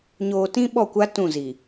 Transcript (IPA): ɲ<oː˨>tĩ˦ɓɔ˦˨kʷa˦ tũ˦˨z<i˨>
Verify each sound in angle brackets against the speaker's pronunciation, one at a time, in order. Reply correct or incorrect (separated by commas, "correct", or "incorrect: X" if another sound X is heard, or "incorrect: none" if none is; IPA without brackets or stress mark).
correct, correct